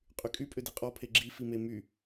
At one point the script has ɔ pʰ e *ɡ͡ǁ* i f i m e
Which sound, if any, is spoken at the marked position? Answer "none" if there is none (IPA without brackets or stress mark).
ɡ͡ǁ